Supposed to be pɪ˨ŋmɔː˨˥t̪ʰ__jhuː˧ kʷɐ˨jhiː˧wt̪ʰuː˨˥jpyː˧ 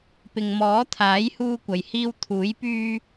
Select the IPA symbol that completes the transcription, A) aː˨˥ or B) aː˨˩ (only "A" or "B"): A